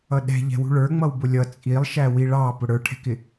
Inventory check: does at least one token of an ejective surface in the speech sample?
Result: yes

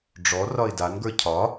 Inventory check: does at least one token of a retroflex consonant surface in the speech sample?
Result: yes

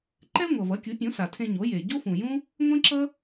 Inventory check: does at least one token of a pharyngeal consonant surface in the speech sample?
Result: no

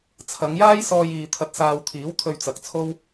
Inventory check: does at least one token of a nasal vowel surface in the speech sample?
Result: no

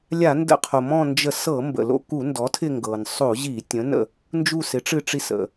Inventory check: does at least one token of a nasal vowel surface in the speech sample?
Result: yes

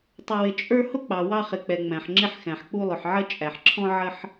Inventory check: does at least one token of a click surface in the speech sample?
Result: yes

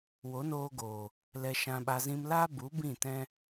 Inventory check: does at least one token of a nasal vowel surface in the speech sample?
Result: yes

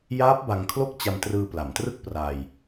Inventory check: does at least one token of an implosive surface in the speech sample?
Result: no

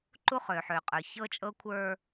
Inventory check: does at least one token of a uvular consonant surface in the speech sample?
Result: yes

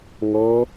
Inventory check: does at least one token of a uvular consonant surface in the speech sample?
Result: no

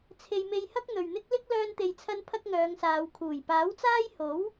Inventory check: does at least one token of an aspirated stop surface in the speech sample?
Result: yes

